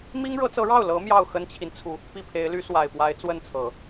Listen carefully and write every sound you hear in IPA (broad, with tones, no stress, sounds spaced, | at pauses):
m i˥ ŋ ɻ ɤ˧˥ t͡s ɤ˧˥ ɻ ɑ˥˩ ʊ̯ l ɤ˧˥ m j ɑ˥˩ ʊ̯ x ə˥ n t͡ɕʰ i˨ n t͡sʰ u˥˩ | p i˥˩ pʰ e˧˥ ɪ̯ l y˧˥ s w a˨˩ ɪ̯ p w a˧˥ ɪ̯ t͡s w ə˥˩ n t͡sʰ ɤ˨˩˦